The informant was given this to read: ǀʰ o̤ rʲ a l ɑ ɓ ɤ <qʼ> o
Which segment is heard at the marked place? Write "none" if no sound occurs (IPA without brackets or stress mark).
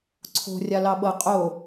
qʼ